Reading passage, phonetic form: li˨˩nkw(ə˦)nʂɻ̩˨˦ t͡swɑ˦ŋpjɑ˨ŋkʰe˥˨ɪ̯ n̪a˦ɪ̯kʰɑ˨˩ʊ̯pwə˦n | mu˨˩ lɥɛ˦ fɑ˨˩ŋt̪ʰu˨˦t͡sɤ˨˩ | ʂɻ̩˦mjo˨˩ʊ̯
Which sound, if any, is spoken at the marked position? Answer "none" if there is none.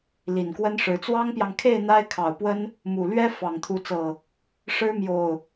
ə˦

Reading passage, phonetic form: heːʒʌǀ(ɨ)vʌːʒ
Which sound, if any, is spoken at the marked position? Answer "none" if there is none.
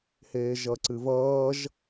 ɨ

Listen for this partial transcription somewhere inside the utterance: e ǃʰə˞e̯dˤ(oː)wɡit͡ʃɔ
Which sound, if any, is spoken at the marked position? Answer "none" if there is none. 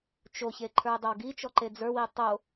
o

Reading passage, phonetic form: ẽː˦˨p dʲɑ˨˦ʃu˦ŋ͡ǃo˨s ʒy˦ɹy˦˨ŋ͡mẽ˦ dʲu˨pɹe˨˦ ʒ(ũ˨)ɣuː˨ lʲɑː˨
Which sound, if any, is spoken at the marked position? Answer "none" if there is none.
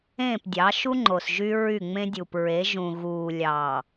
ũ˨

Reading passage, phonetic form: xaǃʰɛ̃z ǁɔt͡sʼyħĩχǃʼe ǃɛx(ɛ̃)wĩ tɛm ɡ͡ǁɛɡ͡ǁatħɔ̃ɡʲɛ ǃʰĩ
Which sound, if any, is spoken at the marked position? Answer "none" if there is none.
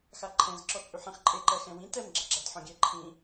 ɛ̃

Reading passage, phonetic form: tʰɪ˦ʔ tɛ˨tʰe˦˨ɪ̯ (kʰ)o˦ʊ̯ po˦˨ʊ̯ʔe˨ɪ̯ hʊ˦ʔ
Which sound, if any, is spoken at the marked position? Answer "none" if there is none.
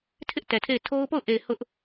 tʰ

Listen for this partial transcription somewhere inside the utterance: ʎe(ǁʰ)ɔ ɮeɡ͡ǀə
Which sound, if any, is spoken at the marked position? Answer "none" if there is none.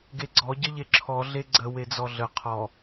ǁʰ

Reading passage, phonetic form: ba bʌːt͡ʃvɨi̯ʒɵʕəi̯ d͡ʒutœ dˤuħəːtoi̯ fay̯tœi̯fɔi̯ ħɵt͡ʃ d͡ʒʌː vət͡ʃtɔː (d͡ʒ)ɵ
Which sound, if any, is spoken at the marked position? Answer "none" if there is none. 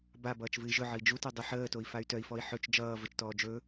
d͡ʒ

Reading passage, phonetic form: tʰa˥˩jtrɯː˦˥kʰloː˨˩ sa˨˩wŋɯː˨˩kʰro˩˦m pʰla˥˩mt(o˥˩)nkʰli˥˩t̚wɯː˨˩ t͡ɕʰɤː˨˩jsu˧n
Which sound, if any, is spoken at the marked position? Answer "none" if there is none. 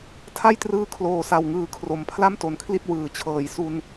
o˩˦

